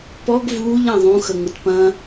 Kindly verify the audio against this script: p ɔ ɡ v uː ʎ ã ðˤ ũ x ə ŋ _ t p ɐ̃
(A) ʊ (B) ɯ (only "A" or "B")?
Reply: A